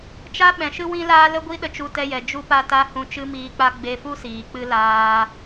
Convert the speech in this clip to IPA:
t͡ʃ a˦ ɓ ɛ̃˨ ʃ ɨ˦ w ĩ˦ l aː˦ l ə˦ ɡʷ i˦ ɗ ə˧ t͡ʃ u˧ t ɛ˧ j ɛ˨ d͡ʒ u˧ p a˧ t a˧ h ũ˧ t͡ʃ ɨ˦ m iː˧ k͡p a˦ ɡ͡b e˧ f u˦ s iː˨ k͡p ɨ˦ l aː˧

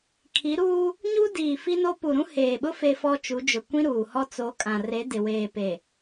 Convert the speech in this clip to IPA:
kʰ i˨˦ ɾ uː˦ | ɲ u˦ d iː˨ f i˦ n o˦ p u˨ ɾ ũ˦ h eː˨ ɓ ʊ˦ f e˦ f ɔ˦ t͡ʃ u˨˦ d͡ʒ ʊ˨ kʷ ĩ˦ ɾ uː˨ h ɔ˦ t͡s o˨˦ kʼ ã˨ r e˨˦ d ɪ˨ w eː˨ p e˨

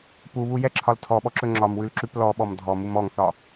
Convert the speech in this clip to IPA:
p u β u j ɛ ǁʰ ɒ l tʰ ɔ ɓ ɔ ǁ ɵ ŋ͡ǁ ɒ m w ʉ l ǁ ʉ p l ɔ ɓ ɔ m dʱ ɔ m u m ɔ ŋ θ ɒ

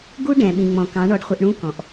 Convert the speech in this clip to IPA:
ɡ u˦ ɖ ɛ̃˨ ɓ ĩ˨ ŋ͡m ɔ̃˨ k ɑ̃˨˦ ɳ ɔ˧ ɖ χʷ ɪ˧ ʔ ɳ ũ˦ k ɔ̃˨ ʔ

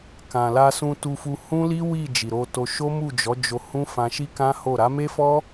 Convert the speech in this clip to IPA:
k ã˨ l a˧ s ũ˧ t u˧ f u˧ h ũ˦ l i˦ w i˦˨ d͡ʒ i˨ ɾ o˧ t o˧ ʃ o˦ m u˦˨ d͡ʒ ɔ˨˦ d͡ʒ o˧ h ũ˦ f ã˧ ʃ i˦ k ã˦ h o˦˨ ɾ a˨˦ m e˦ f ɔ˦

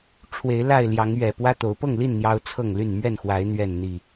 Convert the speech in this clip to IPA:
ʈ͡ʂʰ w e˨˦ ɪ̯ l a˥˨ ɪ̯ l j ɑ˨˦ ŋ ɥ ɛ˨˩ p w ä˦ t̪ o˨˦ ʊ̯ p ɤ˥˨ ŋ l i˥˨ n n̪ j ɑ˦ ʊ̯ t͡sʰ ɤ˥˨ ŋ l y˥˨ n m ɥ ɛ˥˨ n x w a˨˦ ɪ̯ n̪ ɥ ɛ˥˨ n n̪ i˥˨

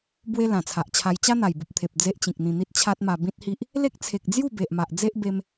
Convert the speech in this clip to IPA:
b w e˦ l ã˨˩ t͡sʰ a˨ ʔ t͡ɕʰ a˧ j t͡ɕ a˦ n̪ a˨˩ j b u˨ p̚ t̪ʰ e˨ p̚ d͡z e˦ ʔ t͡ɕ ĩ˨ k̚ n̪ ĩ˧ n̪ i˦ t̚ t͡ɕʰ a˦ t̚ m a˧ b ĩ˦ t̚ h i˦ ʔ | l e˦ k̚ t͡sʰ e˨ k̚ d͡z j u˥˧ b e˨ ʔ m a˨ ʔ d͡z e˦ ʔ b e˧ m

